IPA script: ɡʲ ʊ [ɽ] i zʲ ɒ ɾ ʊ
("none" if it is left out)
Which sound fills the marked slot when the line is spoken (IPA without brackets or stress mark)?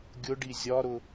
ɖ